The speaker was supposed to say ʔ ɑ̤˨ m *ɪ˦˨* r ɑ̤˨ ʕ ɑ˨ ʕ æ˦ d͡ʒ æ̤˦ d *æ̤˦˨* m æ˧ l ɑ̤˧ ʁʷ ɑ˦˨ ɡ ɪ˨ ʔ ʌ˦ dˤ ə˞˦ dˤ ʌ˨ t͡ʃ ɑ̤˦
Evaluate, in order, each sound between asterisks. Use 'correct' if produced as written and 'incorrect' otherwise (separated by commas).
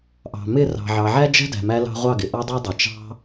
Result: correct, incorrect